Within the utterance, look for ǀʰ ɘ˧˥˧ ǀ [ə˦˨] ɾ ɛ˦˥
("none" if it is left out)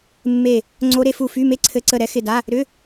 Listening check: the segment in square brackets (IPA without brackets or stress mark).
ə˦˨